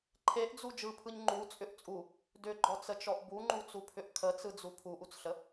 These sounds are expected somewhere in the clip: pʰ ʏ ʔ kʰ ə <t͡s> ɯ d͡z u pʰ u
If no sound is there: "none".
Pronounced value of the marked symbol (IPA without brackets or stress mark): t͡s